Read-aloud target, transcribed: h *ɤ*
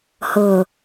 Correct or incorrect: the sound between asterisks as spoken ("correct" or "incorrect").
correct